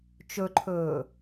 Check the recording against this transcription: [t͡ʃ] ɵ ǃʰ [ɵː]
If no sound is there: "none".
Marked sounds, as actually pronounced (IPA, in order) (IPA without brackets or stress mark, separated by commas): t͡ʃ, ɵː